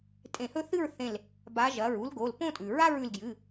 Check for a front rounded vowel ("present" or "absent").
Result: absent